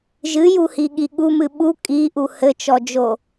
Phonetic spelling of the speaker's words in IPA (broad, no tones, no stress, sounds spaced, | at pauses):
ʒ ɨ j u h i ɠ i ɠ u m ɨ ɓ u kʼ i ʔ u h ɘ t͡ʃ ɔ d͡ʒ o